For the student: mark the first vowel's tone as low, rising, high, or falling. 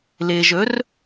low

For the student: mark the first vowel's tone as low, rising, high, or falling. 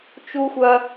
high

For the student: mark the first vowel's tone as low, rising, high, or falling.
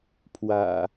low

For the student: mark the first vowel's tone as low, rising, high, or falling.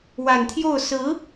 low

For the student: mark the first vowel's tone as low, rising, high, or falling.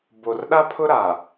low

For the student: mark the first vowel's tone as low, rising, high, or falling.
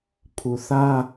low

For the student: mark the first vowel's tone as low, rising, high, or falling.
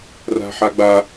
high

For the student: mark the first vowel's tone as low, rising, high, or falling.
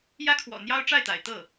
high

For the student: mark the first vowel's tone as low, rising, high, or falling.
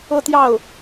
falling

